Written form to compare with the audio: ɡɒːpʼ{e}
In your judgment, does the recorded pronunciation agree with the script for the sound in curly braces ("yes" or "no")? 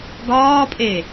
yes